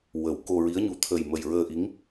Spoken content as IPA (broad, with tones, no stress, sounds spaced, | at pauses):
w ə˨˩˦ w k o˧ ɹ i˧˥ ə̯ ɲ u˧˥ t̪ʰ ə˨˩ j m ə˨˩ j ɹ əː˧ ʔ i˧˥ ŋ